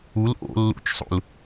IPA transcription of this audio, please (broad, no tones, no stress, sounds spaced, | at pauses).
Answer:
u l ʔ o̰ lː ṵ t͡ʃ sˤ ṵ l